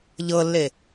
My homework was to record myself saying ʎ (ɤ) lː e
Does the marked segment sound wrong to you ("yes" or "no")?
no